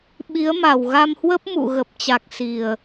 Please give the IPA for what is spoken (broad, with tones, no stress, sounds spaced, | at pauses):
ɓ i˨˦ ə̯ m a˨˩ w ɣ a˧ m h w ə˦˥ p̚ m ṵ˧˨ ɣ ə˨˩ p̚ t͡ɕ a˨˩ k̚ s i˨˩ ə̯